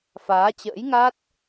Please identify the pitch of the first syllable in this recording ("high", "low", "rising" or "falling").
rising